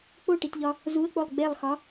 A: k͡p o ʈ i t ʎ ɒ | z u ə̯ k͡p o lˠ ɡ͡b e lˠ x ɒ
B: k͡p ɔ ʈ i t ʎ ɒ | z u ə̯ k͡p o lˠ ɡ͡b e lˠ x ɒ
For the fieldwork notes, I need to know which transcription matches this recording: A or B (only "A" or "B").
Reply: A